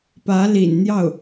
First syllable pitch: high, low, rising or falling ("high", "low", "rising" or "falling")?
rising